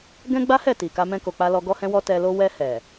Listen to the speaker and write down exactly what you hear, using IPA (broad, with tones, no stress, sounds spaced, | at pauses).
ɡ ɛ̃˦ ɡ͡b a˦ h ɛ˦˨ t i˨ k a˧ m ɛ̃˧ k o˨ k͡p a˧ l ɔ˧ ɡ ɔ˦ h ɛ̃˦ w ɔ˦ t ɛ˧ l o˦ w ɛ˧ h ɛ˨